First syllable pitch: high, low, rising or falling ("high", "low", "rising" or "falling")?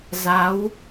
rising